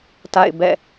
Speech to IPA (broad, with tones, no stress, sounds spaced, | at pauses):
t a̰˦˨ ɪ̯ b ɛ̰˦˨